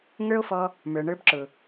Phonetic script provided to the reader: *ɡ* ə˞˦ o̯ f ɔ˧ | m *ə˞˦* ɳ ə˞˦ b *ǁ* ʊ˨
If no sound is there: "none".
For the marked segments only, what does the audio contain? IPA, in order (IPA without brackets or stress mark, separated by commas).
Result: ŋ, ə˞˨, ǁ